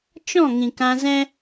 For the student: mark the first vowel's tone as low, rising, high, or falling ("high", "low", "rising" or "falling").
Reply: falling